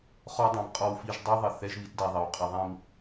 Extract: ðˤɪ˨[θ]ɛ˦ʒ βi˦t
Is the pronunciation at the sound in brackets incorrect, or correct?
correct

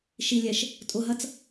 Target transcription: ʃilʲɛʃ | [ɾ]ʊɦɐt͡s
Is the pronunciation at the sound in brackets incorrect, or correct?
incorrect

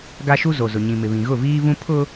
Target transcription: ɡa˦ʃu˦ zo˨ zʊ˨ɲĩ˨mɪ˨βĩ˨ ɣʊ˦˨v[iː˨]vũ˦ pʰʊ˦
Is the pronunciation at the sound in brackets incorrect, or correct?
incorrect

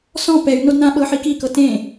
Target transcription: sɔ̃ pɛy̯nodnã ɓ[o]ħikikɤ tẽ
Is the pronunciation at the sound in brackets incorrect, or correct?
incorrect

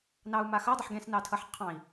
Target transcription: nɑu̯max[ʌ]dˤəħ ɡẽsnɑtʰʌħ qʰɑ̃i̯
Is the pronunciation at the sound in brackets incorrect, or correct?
correct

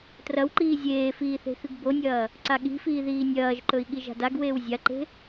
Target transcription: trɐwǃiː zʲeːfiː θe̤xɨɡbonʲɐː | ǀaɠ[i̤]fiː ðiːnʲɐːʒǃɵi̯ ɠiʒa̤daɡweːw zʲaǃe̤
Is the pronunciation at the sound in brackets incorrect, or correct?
correct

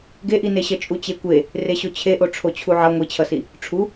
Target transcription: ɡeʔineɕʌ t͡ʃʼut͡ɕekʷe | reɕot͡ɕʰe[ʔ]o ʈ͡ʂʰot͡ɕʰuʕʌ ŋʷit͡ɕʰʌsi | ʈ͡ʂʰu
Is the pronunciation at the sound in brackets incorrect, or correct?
correct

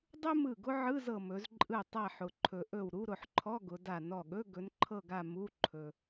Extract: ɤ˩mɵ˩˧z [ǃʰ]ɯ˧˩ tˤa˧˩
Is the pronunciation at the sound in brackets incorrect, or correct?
incorrect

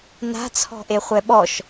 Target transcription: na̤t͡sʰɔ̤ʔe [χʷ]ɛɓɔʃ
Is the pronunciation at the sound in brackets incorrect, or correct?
correct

